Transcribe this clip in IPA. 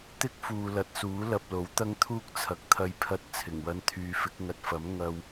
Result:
t̪ ɪ˥ k̚ f uː˨ l ɐ˨ t̚ s uː˨˥ l ɐ˧ p̚ l o˨˥ w t̪ ɐ˥ ŋ t̪ʰ uː˥ k̚ t͡sʰ ɐ˨ k̚ t̪ʰ ɐ˧ j pʰ ɐ˧ t̚ t͡sʰ ɪ˨˩ ŋ w ɐ˧ n t̪ʰ yː˨˧ f ɪ˨˥ k̚ ŋ ɐ˨ t̚ f ɐ˨˥ m ŋ ɐ˧ w

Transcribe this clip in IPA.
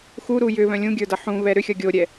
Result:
x u ɾ u j ʏ β œ̃ lʲ ũ ɡʲ ə˞ d ʌ ħ ũ β ɛ ɾ ʏ xʲ ʌ ɡʲ o ɾʲ ɛ

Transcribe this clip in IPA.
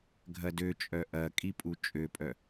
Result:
ɡʱ ɐ d ø t͡ʃʼ œ ʔ ɐ kʼ i pʼ u t͡ʃʼ ø pʼ œ

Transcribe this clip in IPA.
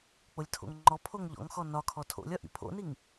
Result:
k͡p o lʲ tʰ o̰ ŋ ŋ͡ǃ ɔ pʰ o ŋ ʎ ɔ̰ ŋ x ɔ n ɒ kʰ ɔ tʰ o̰ lʲ ɒ ʔ ḭ pʰ o̰ n i ŋ

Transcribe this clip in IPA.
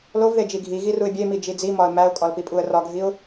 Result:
l o v ð e d͡ʒ i ɡʱ i ɣ i r u ɪ̯ bʲ e m i d͡ʒ i d͡z i m ɒ ə̯ m æ ʊ̯ kʼ ɒ l p i pʼ u ə̯ r ɒ ɡʱ i ʊ̯

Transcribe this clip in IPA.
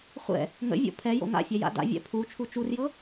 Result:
χʷ ɛ̰ | ŋ ə̰ vʲ o̰ pʰ ɛ j o̰ ŋ a̰ fʲ ɛ j a̰ d a̰ vʲ ɛ̰ pʰ u t͡ʃʰ u t͡ʃ u r j ɤ

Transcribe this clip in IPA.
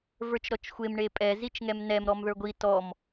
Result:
v ə˞ t͡ʃ ɾ ɔ t͡ʃ xʷ e m ɳ e pʼ ɛ z i t͡ʃ ŋ ɛ m n ɛ m ɾ ɔ m ð ə˞ ɡʷ i t ɔ m

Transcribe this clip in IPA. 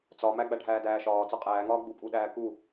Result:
t͡s ɒ m æ ɡ͡b æ ɖʱ æː d æː ʃ ɒː t͡s ɒ qʼ æː ŋ ɒː ɡ͡b u pʼ u ɗ æː k u

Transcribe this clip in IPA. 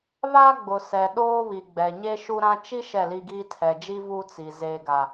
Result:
β a˦ ɡ͡b ʊ˨ s ɛ˨ ɗ oː˦ β i˨ ɡ͡b ɛ˨ ɲ e˦ ʃ u˦ ɾ ã˦ t͡ʃ i˦ ʃ ɛ˦˨ l i˦ ɡ iː˦ tʰ ɛ˨ d͡ʒ i˦ v u˦ t͡s i˨ z eː˦ ɡ a˦

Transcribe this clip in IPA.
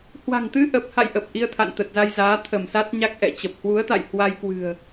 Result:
h w a̤˨˩ ŋ t̪ ɨ˧ ʔ ə˨˩ p̚ h a̰˧˨ j ʔ ə˨˩ p̚ ʔ i˧ ə̯ t̪ʰ a̰˧˨ n t̪ ə˨˩ t̚ z a˧ j z aː˨˦ t̪ʰ ə˧˩ m s a˦˥ t̚ ɲ a˦˥ k̚ ʔ ɛ̰˧˨ t͡ɕ ə˨˩ p̚ h w u˨˦ ə̯ t̪ a̰˧˨ j h w a˧ j k w ɨ̤˨˩ ə̯

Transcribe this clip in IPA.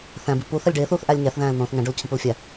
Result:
θ æ̃ b i p u θ æ lʲ ɖ eː θ uː θ ʔ æ lʲ ɲ æ θ ð æ̃ː l n̪ õː θ ŋ æ̃ ɖ o l cʰ ĩ p u l fʲ æ

